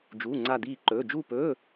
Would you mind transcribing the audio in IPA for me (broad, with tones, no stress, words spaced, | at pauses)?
d͡ʒuː˧˥˧ŋ͡ǀa˥˧d̪iː˥˧ǃɵː˧˥˧ d͡ʒu˥˧pɵː˧˥˧